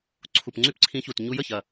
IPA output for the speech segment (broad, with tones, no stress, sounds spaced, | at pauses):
ǀʰ u˨˩ p ŋ͡ǀ y˥ p ǀʰ ĩ˧˥ ç u˨˩ t ɲ u˧˥ j ə˨˩ ç ɐ˨˩